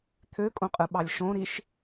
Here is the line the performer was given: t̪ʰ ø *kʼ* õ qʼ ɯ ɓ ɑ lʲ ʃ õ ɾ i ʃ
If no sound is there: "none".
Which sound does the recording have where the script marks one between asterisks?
kʼ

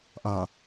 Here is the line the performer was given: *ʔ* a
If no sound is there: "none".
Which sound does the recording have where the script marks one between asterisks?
ʔ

